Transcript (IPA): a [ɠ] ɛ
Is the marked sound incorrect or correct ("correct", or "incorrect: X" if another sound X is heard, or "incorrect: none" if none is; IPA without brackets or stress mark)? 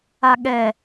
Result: correct